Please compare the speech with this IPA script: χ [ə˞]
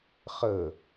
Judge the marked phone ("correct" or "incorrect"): incorrect